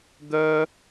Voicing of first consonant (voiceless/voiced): voiced